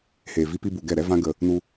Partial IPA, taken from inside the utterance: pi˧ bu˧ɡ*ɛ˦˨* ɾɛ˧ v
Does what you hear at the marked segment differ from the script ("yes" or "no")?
no